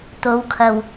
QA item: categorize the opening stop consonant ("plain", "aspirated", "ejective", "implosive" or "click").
plain